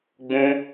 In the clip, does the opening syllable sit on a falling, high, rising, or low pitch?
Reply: high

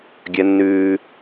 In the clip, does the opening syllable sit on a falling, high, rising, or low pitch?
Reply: high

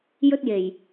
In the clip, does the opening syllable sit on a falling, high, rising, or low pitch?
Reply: high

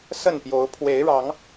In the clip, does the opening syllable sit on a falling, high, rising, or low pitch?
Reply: falling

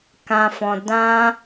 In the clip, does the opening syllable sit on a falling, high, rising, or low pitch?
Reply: low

